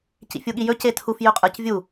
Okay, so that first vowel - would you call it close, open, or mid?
close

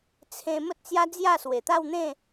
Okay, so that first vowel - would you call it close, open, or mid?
mid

